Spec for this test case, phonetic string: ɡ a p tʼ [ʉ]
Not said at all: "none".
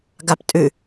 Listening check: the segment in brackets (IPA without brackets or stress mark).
ʉ